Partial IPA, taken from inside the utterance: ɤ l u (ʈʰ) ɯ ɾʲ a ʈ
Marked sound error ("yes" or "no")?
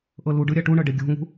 yes